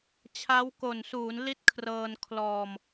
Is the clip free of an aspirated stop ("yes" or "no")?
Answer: no